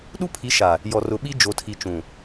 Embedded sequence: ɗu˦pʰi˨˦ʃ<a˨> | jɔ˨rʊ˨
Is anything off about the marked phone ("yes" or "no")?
no